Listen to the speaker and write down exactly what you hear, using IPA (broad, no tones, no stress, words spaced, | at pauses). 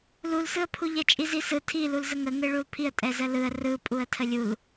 lulsɯə̯pʰu ʎɛt͡ʃʼizisɯ tʰilulzə ŋəŋɯ ɭulpʰiə̯ tʼɛzəlɯə̯ rɯpʼuə̯tʰə lʲul